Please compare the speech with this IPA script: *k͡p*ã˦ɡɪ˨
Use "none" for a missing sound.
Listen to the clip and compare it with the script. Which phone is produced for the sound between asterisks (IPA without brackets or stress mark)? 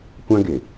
kʷ